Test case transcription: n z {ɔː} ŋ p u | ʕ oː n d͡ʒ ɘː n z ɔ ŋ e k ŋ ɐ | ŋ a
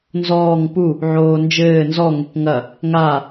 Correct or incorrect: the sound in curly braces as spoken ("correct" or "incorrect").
correct